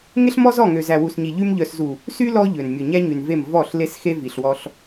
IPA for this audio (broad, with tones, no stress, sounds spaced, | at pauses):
ŋ e˦ ɬ m ɔ˦ z ɔ˦˨ ŋ ø˨ z æ˨ w u˨ s ɲ i˨ ʎ y˦ m ʎ œ˨ s z u˨ | s y˦ l ɔ˦ ʎ ø˨ n mʲ ɵ˨ ɲ æ˦ ɲ y˨ n v e˦˨ m v ɔ˦˨ ɬ l e˦ s x e˦ v i˨ ɬ w ɔ˦ ɬ